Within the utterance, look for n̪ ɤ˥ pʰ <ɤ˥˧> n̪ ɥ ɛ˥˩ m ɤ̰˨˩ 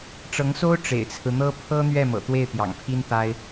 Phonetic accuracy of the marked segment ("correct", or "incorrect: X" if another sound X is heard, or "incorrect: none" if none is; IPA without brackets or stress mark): incorrect: ɤ˥